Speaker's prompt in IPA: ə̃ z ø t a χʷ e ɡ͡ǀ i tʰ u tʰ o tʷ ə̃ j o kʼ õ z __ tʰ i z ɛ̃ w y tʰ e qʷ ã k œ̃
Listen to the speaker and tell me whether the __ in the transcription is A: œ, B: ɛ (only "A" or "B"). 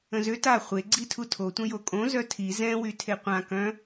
A